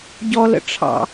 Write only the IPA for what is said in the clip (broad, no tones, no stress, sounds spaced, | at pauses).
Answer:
ɟ ɔ l ə̰ ʈ͡ʂʰ ɑ̰